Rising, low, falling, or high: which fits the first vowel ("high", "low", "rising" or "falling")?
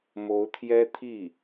rising